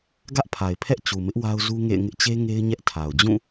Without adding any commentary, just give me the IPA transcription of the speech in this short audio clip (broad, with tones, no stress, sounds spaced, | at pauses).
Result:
ɡ ä˦ ʔ pʰ a˨ ɪ̯ pʰ ɛ˦ ʔ t͡ɕ u˨ m ɪ˦ ʔ w a˦ ʊ̯ z u˦ ŋ ḛ˦˨ ɪ̯ ŋ ɪ˦ ʔ t͡ɕ e˦ ŋ e˦ ɪ̯ ɲ ɛ˦ ʔ tʰ a˨ ʊ̯ d͡ʑ ũ˦˨